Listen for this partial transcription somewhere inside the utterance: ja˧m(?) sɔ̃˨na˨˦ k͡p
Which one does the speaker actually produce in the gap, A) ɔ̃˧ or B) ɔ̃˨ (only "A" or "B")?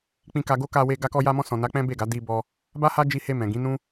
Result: A